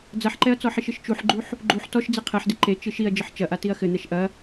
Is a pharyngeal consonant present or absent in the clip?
present